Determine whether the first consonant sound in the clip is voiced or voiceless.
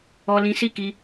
voiced